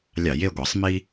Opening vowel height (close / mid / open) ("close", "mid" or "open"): open